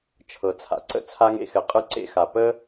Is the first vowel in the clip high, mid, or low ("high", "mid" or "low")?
mid